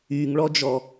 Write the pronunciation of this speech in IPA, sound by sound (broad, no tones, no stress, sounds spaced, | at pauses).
y ŋ ɭ ɔ d͡ʒ ɔ